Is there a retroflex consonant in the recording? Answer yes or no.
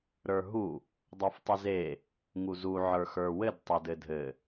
no